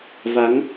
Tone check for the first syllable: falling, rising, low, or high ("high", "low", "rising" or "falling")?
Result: rising